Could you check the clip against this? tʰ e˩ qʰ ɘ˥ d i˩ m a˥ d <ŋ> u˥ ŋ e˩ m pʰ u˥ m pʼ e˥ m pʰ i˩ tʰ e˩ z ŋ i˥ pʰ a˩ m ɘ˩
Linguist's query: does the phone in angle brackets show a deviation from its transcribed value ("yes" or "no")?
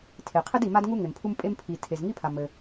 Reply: no